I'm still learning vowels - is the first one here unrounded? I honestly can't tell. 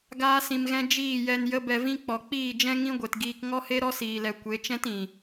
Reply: yes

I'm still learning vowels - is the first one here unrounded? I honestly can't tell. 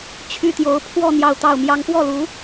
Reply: no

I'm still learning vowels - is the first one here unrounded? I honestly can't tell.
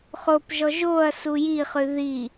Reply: no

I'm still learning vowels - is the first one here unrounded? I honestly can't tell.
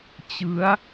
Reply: yes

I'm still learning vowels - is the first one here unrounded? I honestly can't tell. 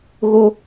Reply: no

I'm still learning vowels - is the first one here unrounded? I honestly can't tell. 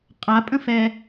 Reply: yes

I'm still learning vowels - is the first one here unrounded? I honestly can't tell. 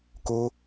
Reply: no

